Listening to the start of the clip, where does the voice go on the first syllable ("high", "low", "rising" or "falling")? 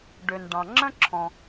low